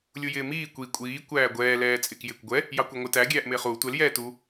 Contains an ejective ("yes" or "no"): yes